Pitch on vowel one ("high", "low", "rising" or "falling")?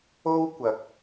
high